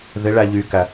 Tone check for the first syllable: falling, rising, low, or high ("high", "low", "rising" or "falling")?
rising